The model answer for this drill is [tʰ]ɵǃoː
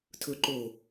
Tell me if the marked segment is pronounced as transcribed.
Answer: yes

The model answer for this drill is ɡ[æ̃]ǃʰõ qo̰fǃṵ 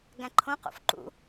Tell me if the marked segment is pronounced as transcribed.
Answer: yes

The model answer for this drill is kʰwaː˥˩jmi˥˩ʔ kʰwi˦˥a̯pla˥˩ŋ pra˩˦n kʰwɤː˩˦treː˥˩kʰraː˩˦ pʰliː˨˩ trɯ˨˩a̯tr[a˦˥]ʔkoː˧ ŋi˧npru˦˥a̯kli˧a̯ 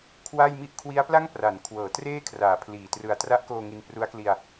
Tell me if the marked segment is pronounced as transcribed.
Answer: yes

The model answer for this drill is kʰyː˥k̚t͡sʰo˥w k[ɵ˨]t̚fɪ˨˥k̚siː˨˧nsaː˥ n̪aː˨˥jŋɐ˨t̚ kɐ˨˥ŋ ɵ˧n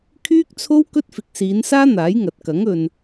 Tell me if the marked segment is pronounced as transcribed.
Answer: no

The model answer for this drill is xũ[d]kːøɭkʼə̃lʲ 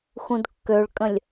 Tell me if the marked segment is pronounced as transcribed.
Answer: yes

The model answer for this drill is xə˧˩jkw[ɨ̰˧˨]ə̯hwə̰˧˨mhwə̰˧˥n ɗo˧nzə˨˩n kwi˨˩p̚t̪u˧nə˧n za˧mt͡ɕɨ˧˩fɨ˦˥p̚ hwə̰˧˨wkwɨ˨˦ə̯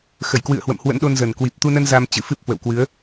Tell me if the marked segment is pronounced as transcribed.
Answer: yes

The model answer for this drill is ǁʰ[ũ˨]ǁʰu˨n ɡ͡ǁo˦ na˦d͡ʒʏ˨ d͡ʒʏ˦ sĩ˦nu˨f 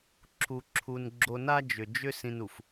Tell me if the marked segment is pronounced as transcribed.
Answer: no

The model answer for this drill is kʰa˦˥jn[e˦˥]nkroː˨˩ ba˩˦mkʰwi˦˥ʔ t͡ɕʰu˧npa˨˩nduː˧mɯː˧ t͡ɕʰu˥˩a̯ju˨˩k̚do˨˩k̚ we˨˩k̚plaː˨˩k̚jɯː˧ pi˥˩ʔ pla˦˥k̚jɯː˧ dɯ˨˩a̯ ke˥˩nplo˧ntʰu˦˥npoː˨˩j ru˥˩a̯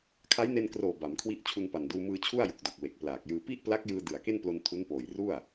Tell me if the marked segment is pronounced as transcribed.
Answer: no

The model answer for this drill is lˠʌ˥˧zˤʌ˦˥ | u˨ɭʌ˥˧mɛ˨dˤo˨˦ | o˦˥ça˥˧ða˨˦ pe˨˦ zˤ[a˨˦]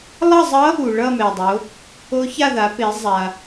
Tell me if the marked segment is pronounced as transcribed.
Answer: no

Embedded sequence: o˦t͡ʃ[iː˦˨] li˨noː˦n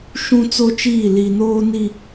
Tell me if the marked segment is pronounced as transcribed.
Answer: yes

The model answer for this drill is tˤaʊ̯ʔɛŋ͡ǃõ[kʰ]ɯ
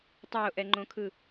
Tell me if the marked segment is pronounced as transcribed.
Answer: yes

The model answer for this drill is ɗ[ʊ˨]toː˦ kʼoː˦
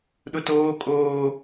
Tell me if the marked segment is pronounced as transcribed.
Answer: no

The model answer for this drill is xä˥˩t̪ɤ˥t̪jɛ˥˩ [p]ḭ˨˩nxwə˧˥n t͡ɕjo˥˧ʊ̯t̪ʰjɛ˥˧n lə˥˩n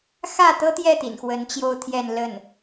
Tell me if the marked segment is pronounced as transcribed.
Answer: no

